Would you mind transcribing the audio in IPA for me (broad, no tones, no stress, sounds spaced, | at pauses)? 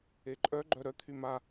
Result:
e ǃʼ œ ɡ͡ǃ œ ɾ œ t̪ʰ y m a